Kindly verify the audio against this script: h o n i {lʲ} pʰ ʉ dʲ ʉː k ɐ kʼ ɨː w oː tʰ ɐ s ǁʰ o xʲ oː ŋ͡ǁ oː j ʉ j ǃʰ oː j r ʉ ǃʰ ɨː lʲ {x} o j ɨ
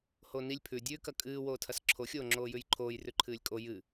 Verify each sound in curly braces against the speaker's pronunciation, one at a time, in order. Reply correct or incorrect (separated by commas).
correct, incorrect